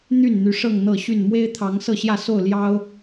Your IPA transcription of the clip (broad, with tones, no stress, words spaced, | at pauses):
n̪y˥˨n n̪y˨˦ʂɤ˥˨ŋn̪ɤ˥˨ɕy˥˨n mwe˦ɪ̯t̪ʰɑ˨˦ŋ sɤ˥˨ɕjä˥˨so˥˨ʊ̯ ljɑ˦ʊ̯